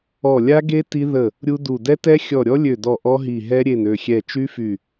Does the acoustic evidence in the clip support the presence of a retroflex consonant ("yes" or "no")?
no